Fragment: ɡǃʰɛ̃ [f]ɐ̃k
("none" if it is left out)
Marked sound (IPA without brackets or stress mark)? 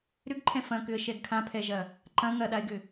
f